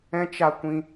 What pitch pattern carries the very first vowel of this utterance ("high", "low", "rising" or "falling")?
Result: high